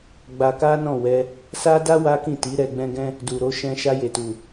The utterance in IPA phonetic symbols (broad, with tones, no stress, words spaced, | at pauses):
ɡ͡ba˧ka˦ nɔ̃˦˨wɛ˧ | sa˦da˦ wa˦kĩ˦˨ti˨˦ ɾɛ˧ ɡ͡bɛ̃˦ɡɛ̃˦ | du˨ɾo˨˦ʃɛ̃˧ ʃa˧je˨tu˨